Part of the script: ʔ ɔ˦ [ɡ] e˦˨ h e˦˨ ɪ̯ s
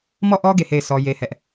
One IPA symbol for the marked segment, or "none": ɡ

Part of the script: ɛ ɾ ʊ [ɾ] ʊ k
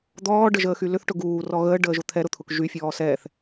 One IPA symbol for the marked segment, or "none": t̪ʰ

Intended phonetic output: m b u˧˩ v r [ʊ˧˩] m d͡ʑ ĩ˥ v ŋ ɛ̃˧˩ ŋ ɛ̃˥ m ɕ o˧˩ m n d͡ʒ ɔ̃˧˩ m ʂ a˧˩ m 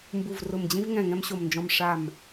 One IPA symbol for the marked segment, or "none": ʊ˧˩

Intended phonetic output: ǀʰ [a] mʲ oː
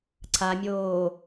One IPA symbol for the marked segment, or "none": a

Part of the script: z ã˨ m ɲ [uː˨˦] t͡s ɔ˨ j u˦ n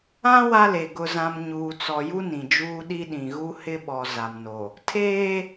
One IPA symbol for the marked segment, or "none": uː˨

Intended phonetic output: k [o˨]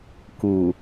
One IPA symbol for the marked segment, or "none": u˨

